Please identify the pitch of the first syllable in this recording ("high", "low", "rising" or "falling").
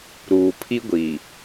low